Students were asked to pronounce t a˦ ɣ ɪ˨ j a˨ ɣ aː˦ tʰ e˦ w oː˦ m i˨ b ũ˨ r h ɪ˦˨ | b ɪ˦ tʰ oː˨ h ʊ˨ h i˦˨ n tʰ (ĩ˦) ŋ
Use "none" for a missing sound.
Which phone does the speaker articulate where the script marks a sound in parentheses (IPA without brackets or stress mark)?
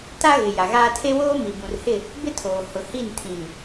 ĩ˨